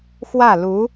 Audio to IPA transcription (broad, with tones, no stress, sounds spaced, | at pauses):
x w ä˥˩ l u˧˥